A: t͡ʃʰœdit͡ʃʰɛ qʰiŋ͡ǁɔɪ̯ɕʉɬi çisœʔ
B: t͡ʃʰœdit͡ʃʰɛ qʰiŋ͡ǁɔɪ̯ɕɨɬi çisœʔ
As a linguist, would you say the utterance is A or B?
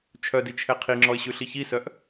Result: A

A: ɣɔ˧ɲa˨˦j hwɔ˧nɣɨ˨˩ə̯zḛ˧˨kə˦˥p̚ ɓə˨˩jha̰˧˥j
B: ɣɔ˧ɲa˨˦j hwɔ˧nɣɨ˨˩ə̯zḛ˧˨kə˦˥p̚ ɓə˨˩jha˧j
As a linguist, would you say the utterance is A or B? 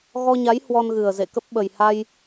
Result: B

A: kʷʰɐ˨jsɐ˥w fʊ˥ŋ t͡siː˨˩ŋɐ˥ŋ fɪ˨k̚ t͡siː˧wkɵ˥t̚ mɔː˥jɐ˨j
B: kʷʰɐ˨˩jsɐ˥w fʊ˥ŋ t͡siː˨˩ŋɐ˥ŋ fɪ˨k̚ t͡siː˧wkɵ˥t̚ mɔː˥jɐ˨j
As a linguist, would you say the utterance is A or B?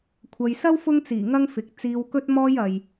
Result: A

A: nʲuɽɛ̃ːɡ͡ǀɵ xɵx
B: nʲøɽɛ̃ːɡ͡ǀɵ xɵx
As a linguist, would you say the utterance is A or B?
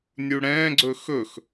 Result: A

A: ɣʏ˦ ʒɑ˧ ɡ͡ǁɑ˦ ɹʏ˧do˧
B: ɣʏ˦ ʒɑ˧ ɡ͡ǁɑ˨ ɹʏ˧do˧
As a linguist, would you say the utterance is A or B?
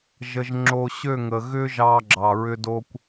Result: B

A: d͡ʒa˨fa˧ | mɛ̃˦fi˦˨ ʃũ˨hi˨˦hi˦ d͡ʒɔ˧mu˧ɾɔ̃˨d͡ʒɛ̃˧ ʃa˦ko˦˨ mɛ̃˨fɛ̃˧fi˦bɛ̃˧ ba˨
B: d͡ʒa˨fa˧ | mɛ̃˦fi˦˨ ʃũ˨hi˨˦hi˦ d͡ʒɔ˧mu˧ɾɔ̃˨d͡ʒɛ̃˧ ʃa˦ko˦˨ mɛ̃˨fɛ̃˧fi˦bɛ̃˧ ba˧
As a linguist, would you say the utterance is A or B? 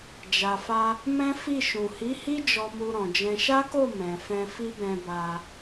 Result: B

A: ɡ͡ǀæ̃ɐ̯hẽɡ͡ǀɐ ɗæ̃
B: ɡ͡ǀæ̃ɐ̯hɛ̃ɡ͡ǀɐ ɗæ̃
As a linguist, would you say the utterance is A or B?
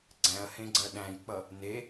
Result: A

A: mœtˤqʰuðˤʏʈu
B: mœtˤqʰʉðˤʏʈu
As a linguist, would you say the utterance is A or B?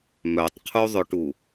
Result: A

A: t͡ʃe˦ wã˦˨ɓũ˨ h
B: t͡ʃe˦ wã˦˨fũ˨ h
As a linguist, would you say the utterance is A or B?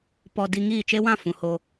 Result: B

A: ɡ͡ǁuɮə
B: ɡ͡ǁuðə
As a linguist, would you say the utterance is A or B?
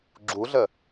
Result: A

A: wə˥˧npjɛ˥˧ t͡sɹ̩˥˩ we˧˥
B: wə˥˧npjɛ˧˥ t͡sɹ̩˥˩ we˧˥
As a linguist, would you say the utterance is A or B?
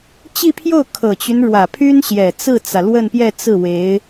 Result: A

